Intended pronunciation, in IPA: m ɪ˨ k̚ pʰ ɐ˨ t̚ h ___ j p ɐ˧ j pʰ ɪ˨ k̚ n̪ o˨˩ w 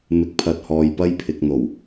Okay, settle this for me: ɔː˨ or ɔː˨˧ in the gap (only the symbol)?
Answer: ɔː˨